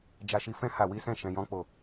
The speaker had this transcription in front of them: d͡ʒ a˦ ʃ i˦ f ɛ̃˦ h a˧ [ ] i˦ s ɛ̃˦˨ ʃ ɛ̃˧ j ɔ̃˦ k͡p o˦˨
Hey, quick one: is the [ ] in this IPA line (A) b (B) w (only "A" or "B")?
B